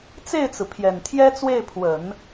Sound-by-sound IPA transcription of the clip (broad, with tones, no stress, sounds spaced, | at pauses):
t͡s e˥˩ ɪ̯ t͡s ɹ̩˩ pʰ j ɛ˨˩ n t̪ʰ j ɛ˥ t͡s w e˥˩ ɪ̯ pʰ w ə˨˩˦ n